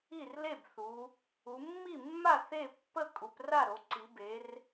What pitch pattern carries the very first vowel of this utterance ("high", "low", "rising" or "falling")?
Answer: falling